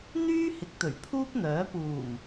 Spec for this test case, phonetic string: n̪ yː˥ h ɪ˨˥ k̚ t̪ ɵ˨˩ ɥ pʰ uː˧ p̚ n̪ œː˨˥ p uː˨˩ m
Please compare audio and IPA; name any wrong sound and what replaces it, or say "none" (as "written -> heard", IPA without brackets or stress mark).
none